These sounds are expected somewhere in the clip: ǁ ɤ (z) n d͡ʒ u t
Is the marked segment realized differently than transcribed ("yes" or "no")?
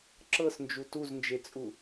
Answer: yes